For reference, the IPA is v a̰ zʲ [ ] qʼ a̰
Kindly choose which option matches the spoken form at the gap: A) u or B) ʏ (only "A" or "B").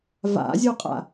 A